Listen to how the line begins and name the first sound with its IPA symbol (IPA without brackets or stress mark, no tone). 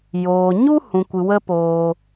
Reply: j